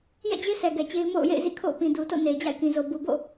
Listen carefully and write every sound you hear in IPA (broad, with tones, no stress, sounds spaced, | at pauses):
j ɛ̰˦˨ d͡ʑ e˦ sʰ ɛ˨ ɡ ɛ˨ t͡ɕ e˦ ɪ̯ m o̰˦˨ ʊ̯ j ḛ˦˨ ɪ̯ z ḭ˦˨ kʰ o̰˦˨ ʊ̯ p ĩ˨ d u˨ t o̰˦˨ n e˨ ɪ̯ d͡ʑ a̰˦˨ ɪ̯ k ĩ˨ z o˨ b u˨ b o̰˦˨